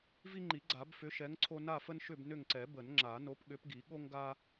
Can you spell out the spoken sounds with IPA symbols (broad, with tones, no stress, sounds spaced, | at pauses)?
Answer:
v i˦ ŋ͡ǃ i˨˩˦ ɡ͡ǀ a˨˩˦ b f ʏ˨˥ ʃ ɛ˨˥ ŋ ǀʰ o˦ n a˦˨ f ə˦ n ʃ ʏ˦˨ b n ʏ˦˨ ŋ ǀ ɛ˨˩˦ b ə˨˩˦ n ŋ͡ǁ a˨˩˦ n o˨˥ p ɠ ʏ˨˥ p ɡ i˨˩˦ ɠ o˦ ŋ ɡ a˦